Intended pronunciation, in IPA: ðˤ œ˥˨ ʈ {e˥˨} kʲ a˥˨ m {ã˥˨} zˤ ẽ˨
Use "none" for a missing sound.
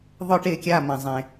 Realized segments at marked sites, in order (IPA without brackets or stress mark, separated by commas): e˥˨, ã˨